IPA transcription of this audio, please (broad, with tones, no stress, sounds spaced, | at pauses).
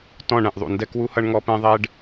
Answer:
t ɔ̃˦˨ ɳ ɛ̃˨ ʔ ðˤ ṵ˨ n d ɛ˦ k w u˦ h ʌ˦ ɳ ŋ ɔ˦ p ɛ̃˦ ðˤ ɛ˦ ɖ